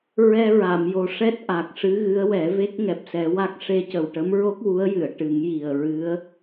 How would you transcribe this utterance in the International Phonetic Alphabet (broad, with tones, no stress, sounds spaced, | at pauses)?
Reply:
ɹ ɛ˧ ɹ a˨˩˨ m j o˨˩ ʂ ɛ˦˥ t̚ ʔ a˨˩ k̚ ʂ ɨ˧˥ ɣ ɨ˧˥ ə̯ w ɛ˨˩˦ v e˦˥ k̚ ŋ ɛ˨˩ p̚ s ɛ˨˩˦ w a˦˥ k̚ ʂ e˧ c ə˨˩ w ʈ ə˧˥ m ɹ o˦˥ k̚ w u˧˥ ə̯ j ɨ˨˩˨ ə̯ ʈ ɨ˨˩˦ ŋ j i˨˩ ə̯ ɹ ɨ˧˥ ə̯